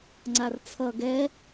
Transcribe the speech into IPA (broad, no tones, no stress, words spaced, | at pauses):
ŋ͡ǀart͡sʰʌ ɡɛ